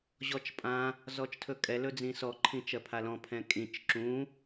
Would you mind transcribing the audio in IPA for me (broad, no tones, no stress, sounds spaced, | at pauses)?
ʑ ɔ t͡ʃ pʼ ã | z ɔ t͡ʃ tʰ ɵ kʼ ɛ l ɵ d͡z ĩ s ɔ ǃʰ ĩ t͡ʃ ɜ pʰ a l ɔ̃ pʰ ɛ̃ kʼ ĩ t͡ʃ ǁ ũ